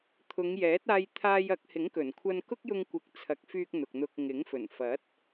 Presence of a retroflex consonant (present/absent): absent